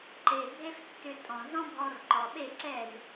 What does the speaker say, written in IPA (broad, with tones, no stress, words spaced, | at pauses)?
ǃe˨ bʱe˦ftːʏ˧ tʼɔ̃˨z ɔ̃˦bʱɔ˧rǃɔ˨ ɓe˦˨ǀɛ˦˨z